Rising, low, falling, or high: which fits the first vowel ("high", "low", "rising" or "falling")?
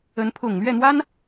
rising